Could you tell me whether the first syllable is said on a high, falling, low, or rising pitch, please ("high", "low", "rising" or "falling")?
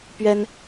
high